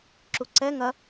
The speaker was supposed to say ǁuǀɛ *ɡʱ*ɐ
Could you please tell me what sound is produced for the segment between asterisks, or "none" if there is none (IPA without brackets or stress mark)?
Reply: ŋ